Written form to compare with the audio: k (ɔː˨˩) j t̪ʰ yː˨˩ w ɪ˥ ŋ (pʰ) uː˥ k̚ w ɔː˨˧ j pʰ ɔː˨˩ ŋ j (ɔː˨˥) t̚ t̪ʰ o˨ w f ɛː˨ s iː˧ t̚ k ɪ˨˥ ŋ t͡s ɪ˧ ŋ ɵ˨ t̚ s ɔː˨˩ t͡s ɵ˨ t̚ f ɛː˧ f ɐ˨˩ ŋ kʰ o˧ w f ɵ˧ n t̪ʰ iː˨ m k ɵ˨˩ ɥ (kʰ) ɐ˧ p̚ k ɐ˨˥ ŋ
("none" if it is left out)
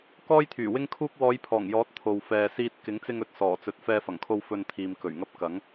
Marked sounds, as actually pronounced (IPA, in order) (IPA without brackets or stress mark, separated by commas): ɔː˥, kʰ, ɔː˨˥, ŋ